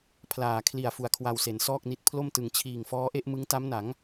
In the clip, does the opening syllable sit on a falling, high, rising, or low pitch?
low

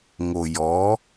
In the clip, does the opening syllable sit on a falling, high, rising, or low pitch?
low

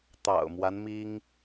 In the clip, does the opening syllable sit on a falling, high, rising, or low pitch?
low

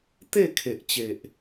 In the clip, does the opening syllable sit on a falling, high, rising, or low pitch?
falling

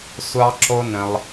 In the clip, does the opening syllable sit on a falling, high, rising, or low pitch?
high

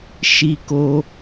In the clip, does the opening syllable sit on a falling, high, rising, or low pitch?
high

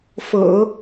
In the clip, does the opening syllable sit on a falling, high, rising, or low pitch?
low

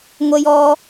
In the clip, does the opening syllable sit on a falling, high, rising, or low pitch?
high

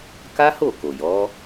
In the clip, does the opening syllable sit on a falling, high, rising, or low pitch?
high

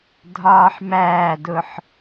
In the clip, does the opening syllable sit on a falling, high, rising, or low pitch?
high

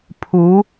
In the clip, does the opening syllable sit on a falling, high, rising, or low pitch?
rising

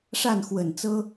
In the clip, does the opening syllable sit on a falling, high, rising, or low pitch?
falling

